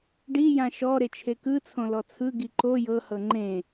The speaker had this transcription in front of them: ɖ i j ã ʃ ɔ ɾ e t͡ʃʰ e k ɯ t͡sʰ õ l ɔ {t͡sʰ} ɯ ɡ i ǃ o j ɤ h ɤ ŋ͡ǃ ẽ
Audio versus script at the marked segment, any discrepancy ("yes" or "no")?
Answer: no